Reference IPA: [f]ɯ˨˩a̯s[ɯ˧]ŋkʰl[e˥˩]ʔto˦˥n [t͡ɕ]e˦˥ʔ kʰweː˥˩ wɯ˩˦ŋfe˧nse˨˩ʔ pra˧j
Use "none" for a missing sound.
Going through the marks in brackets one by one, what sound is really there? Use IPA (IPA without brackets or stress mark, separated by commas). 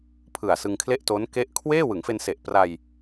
pʰ, ɯ˧, e˥˩, k